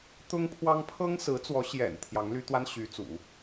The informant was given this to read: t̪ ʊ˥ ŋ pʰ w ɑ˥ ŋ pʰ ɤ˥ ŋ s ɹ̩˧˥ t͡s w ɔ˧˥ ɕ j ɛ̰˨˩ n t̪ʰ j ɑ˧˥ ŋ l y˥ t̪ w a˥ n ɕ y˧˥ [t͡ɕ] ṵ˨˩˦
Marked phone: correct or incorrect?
incorrect